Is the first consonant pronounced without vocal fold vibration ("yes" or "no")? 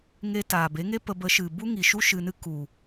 no